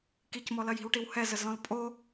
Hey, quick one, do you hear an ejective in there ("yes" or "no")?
yes